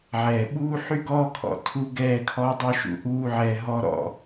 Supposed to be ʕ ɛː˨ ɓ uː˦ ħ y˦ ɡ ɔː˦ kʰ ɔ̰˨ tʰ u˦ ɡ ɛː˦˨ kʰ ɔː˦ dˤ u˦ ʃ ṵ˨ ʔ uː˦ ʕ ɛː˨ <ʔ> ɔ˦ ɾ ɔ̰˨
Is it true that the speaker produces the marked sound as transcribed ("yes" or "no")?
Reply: no